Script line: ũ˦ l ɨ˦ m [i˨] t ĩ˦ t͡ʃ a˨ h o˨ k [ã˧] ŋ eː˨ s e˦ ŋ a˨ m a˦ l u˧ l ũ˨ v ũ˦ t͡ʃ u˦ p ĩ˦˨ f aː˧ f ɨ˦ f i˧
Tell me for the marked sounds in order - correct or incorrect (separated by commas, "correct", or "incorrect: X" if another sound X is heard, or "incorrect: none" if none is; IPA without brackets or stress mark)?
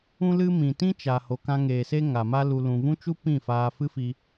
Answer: incorrect: ĩ˨, correct